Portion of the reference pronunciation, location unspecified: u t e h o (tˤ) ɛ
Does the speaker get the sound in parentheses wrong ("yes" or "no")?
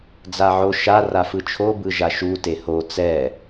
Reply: yes